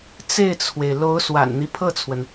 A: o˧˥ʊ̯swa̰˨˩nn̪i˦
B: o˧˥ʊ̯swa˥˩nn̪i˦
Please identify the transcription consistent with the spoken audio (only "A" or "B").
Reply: A